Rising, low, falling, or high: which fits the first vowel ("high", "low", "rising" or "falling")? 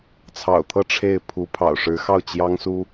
low